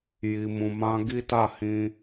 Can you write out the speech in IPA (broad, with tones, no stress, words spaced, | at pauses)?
ji˨mũ˨mã˧ ɡi˦ta˦˨hĩ˧